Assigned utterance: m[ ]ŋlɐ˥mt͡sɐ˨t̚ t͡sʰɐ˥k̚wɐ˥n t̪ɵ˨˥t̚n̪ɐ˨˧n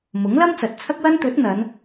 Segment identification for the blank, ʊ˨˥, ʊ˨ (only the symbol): ʊ˨˥